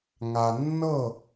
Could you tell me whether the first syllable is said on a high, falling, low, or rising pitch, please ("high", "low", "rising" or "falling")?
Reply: low